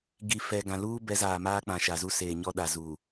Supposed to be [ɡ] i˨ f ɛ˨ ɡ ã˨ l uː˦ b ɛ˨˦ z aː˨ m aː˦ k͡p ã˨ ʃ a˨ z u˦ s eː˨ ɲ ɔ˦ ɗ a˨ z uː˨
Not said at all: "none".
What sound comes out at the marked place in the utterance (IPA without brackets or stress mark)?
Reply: ɡ